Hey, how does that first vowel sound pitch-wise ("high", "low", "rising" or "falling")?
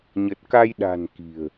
low